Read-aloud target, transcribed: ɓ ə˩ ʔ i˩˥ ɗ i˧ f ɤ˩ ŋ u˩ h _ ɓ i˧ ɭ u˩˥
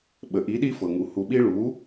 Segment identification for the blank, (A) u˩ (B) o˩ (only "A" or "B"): A